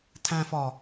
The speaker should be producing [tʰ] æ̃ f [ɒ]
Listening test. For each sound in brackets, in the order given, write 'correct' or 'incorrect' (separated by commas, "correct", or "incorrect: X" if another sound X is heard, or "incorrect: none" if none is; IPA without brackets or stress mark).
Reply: correct, correct